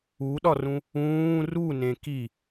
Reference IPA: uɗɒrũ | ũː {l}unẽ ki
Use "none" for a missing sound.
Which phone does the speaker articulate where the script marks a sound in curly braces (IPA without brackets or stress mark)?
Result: r